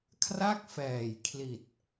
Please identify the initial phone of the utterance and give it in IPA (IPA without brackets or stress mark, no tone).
kʰ